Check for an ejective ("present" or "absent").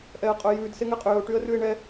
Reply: present